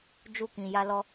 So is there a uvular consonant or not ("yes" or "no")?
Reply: no